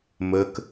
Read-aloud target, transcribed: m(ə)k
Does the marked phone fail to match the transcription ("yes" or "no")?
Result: no